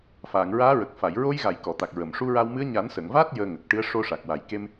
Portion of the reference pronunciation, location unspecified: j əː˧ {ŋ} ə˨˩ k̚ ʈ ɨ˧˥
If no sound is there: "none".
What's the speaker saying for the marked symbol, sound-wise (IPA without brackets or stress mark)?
ŋ